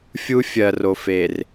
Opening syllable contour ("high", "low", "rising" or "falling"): high